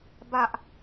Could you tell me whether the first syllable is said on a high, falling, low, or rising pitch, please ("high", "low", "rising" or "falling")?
high